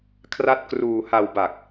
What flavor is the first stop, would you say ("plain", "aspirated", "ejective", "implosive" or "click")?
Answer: aspirated